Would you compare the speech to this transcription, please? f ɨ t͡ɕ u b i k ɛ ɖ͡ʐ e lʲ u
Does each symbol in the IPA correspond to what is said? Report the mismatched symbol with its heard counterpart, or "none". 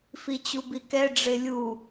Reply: ɨ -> i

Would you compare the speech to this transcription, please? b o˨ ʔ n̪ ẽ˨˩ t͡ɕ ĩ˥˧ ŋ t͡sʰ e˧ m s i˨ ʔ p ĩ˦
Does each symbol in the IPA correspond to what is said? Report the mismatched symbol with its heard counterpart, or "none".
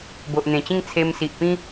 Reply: none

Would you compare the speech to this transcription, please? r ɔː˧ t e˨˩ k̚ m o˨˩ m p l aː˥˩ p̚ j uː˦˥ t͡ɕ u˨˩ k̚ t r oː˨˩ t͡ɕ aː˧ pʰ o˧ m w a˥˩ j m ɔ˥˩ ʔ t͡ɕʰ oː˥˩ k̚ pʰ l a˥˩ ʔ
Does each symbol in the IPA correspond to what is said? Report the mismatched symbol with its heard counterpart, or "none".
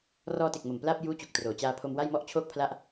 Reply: none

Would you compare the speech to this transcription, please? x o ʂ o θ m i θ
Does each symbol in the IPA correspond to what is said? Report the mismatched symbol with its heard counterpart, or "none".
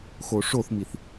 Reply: none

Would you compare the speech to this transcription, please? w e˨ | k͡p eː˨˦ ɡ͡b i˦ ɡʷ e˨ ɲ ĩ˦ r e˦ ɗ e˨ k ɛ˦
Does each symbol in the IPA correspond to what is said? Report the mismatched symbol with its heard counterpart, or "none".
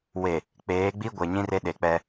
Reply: k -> k͡p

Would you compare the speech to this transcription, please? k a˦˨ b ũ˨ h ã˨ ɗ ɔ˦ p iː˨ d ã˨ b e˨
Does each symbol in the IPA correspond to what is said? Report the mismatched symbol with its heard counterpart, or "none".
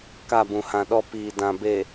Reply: none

